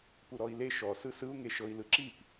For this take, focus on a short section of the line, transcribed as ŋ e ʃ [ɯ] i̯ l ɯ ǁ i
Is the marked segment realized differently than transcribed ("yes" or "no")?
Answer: yes